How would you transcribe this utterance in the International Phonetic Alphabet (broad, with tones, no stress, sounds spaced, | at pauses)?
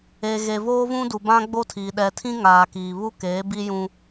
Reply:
e˨ ɣ e˨ v oː˦ v ũ˦ d u˨ b ã˦ ɡ͡b o˦ tʰ iː˨ ɗ ɛ˨ tʰ ĩ˦ ŋ aː˨ k iː˨ β u˦ k eː˨˦ b i˦ j ũ˦